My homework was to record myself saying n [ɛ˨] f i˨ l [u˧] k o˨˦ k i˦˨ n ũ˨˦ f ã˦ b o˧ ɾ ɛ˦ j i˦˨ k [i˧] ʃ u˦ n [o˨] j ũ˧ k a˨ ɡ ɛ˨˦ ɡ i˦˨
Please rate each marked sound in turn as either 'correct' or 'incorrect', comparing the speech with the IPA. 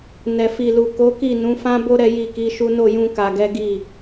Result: correct, incorrect: u˨, incorrect: i˨˦, incorrect: o˦˨

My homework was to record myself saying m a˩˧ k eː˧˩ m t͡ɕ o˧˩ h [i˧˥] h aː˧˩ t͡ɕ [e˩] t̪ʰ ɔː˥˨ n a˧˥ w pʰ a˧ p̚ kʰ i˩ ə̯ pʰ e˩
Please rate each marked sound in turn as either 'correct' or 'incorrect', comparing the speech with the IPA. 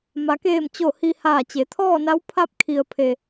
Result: incorrect: i˧, incorrect: e˩˧

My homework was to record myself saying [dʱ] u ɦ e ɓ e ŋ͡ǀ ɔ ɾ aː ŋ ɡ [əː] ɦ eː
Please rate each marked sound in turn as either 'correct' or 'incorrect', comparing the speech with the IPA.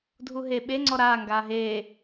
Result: correct, incorrect: aː

